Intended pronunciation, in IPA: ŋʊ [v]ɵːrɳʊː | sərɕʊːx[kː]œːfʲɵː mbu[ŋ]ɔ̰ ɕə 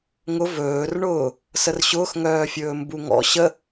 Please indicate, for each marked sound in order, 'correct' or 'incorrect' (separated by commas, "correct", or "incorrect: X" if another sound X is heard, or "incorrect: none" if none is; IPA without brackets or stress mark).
correct, incorrect: ŋ, correct